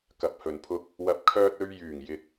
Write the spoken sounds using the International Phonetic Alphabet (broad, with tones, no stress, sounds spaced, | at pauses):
k ɐ˨ p̚ h ɵ˨ n pʰ ʊ˧ k̚ | w ɐ˨ p̚ kʰ œː˧ t̚ ɵ˧ ɥ j yː˨˩ ŋ j ɪ˨ k̚